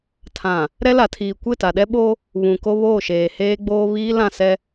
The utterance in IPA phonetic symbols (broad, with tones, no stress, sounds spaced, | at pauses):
tʰ ã˨ | ɾ ɛ˦ l a˨ tʰ iː˨ kʷ ɪ˦˨ t a˨ ɗ ɛ˦ ɓ o˦ | β ũ˨ k o˦ β oː˦˨ ʃ eː˨ h eː˦ ɡ͡b oː˦ β iː˦ l ã˦˨ s ɛ˦